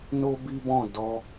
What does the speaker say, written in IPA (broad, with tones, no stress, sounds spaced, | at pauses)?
n o˦ b i˦ b ɔ̃˦˨ d ɔ˧